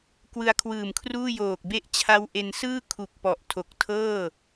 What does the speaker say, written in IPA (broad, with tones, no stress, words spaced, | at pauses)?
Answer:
kwɯ˧a̯kʰwɯː˨˩mkʰruː˥˩ joː˨˩k̚be˦˥ʔt͡ɕʰa˦˥w ʔe˧n sɯː˥˩ kʰu˨˩k̚ pɔ˨˩ʔ tʰo˨˩k̚tʰɤː˥˩